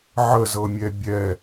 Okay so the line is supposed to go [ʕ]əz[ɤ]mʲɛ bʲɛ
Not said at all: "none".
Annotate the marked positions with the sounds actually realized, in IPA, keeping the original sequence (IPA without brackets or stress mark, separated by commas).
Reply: ʕ, ɤ